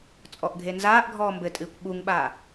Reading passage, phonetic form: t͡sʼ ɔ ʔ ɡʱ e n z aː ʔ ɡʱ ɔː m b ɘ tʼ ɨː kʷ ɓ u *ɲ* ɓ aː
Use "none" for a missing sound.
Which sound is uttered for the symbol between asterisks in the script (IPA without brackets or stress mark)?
ŋ